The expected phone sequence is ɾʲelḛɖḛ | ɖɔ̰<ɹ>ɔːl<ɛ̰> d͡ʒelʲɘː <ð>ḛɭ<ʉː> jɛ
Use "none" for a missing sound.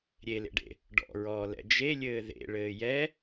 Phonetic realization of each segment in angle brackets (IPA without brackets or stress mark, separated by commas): ɹ, ɛ̰, ð, ɘː